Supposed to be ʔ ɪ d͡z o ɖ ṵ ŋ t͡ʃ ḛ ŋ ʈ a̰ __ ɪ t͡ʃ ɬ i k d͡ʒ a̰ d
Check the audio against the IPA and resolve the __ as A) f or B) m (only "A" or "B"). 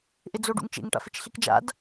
A